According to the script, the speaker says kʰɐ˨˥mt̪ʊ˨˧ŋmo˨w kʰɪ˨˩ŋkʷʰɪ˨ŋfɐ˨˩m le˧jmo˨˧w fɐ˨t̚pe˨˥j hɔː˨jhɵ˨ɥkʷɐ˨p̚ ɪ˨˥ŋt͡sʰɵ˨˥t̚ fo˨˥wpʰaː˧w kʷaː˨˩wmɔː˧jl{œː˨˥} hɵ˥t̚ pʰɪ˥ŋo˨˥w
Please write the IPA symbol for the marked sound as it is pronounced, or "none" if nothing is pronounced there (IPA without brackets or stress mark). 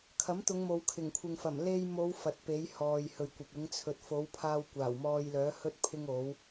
œː˨˥